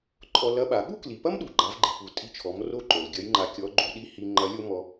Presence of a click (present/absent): present